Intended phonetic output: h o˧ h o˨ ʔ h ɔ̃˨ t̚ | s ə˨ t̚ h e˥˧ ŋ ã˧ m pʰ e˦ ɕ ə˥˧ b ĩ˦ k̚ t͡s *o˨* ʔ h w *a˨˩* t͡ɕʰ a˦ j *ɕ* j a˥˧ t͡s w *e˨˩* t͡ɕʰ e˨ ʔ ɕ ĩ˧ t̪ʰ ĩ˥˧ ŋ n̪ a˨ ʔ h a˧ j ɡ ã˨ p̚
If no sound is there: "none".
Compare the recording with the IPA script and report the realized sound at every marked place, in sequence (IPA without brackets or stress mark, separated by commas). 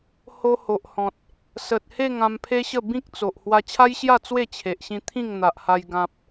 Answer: o˨, a˧, ɕ, e˥˧